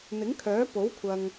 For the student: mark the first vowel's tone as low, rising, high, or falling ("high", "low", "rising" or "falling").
rising